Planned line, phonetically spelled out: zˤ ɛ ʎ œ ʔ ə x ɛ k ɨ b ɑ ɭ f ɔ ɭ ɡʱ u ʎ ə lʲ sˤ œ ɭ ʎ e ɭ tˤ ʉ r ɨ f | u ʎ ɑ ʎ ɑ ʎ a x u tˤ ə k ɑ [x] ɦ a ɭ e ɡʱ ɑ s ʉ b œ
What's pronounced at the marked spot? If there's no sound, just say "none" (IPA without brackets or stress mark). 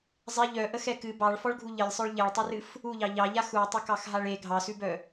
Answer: x